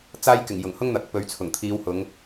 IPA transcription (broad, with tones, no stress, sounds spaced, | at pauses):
t͡s aː˥ j k ɪ˨˩ ŋ j ʊ˨˩ ŋ h ʊ˥ ŋ n̪ ɐ˨˥ k̚ p ɵ˨˧ ɥ t͡sʰ ʊ˨˩ ŋ t̪ʰ iː˨˧ w h ʊ˨˧ ŋ